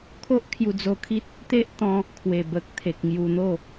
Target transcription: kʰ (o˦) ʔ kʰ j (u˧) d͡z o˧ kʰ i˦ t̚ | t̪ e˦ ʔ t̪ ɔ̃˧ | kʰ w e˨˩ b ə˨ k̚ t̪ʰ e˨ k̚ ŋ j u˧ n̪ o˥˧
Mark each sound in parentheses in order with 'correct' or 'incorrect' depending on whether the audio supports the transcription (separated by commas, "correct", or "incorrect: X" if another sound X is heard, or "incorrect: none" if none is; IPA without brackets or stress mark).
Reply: correct, correct